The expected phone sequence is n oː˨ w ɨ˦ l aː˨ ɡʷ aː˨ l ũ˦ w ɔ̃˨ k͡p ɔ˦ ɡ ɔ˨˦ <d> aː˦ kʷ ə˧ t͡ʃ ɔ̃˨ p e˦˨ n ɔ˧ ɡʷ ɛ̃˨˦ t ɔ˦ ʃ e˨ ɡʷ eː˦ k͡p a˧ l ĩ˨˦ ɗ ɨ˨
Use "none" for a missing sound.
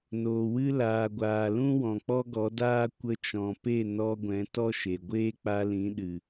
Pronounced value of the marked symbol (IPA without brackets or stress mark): d